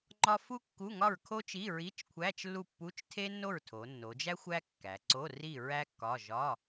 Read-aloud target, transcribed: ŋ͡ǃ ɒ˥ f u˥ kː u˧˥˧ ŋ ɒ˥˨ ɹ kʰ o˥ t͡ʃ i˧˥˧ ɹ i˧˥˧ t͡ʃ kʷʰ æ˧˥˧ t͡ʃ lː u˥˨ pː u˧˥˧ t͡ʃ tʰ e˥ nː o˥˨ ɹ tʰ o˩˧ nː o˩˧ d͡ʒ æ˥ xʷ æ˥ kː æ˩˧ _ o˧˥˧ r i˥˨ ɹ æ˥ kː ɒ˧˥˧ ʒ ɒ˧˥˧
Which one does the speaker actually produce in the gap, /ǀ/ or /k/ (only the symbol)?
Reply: ǀ